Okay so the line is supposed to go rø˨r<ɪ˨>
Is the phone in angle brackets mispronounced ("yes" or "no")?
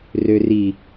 yes